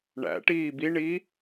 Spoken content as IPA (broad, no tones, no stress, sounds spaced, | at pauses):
ɳ æ̰ ʈ iː b i ɳ i